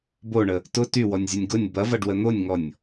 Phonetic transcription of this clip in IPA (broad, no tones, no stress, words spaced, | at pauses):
boɳə | tʊ tywɔnʲzʲʊnʲ ɡʊnʲ bɐvɐɖwə n̪onʲŋɔnʲ